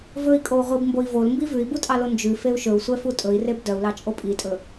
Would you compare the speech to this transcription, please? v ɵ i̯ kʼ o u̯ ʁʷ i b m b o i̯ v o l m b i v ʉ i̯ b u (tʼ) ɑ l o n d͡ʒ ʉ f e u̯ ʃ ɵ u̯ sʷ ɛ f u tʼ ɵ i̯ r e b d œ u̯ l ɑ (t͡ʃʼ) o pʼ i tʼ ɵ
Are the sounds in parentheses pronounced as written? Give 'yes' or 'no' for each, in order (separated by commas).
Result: yes, yes